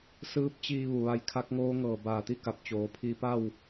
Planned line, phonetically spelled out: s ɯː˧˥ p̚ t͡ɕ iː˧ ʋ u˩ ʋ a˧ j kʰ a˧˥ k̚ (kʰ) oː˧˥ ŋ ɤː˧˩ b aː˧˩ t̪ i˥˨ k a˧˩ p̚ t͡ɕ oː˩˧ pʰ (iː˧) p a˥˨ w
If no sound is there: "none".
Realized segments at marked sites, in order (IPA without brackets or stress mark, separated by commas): ŋ, iː˧